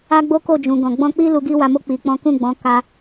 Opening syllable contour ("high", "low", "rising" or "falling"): high